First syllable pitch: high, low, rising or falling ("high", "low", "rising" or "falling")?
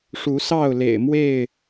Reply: rising